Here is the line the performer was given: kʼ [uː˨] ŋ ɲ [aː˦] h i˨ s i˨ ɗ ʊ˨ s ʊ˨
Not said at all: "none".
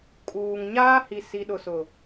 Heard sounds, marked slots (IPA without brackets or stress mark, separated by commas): uː˨, aː˦